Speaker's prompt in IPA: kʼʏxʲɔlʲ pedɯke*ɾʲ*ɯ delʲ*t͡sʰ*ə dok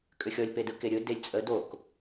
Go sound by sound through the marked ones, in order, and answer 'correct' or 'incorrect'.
correct, incorrect

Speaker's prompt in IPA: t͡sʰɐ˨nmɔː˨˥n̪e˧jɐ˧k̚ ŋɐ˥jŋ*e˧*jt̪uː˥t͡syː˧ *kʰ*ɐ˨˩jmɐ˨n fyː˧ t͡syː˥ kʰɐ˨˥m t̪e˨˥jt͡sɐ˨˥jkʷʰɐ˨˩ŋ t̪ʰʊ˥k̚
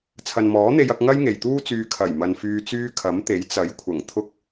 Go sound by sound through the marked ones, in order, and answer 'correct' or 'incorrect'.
incorrect, correct

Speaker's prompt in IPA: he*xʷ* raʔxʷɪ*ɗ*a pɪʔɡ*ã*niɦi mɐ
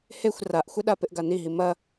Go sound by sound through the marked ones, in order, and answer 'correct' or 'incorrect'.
correct, correct, incorrect

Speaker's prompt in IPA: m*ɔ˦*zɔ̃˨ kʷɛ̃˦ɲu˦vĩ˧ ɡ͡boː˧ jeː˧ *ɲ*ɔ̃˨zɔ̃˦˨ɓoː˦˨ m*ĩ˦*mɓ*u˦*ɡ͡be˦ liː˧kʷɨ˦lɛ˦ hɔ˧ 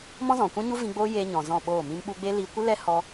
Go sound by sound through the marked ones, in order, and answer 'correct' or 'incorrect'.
incorrect, correct, incorrect, incorrect

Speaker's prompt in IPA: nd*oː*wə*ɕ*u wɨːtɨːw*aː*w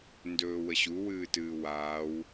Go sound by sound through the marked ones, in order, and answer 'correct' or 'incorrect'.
incorrect, correct, correct

